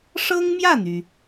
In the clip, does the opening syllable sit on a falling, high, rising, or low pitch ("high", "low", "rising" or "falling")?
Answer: high